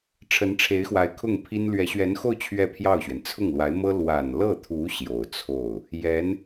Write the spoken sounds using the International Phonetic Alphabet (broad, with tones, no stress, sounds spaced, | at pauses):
ʈ͡ʂʰ ə˧˥ n ʈ͡ʂʰ e˧˥ ɪ̯ x w a˧˥ ɪ̯ kʰ ʊ˥˩ ŋ pʰ i˥ n l ɥ ɛ˧˥ ɕ ɥ ɛ˧˥ n x o˥˧ ʊ̯ t͡ɕʰ ɥ ɛ˥˧ pʰ j ɑ˥˩ ʊ̯ ɕ ɥ ɛ˩ n t͡sʰ ʊ˥˩ ŋ l w a˧˥ ɪ̯ m ɤ˥ l w a˨˩ n l ɤ˥˩ t̪ʰ u˧˥ ɕ j o˨˩ ʊ̯ t͡sʰ o˥˩ ʊ̯ | j ɛ˧˥ n